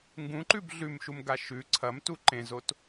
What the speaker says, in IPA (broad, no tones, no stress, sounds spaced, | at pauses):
ŋ ɡ ũ ǃ ʉ b ɮ ʉ m ʃ u m ɡ a ʃ ʉ ǀʰ ɐ m t u ǃ ẽ z o t